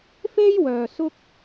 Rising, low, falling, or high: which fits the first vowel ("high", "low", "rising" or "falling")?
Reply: high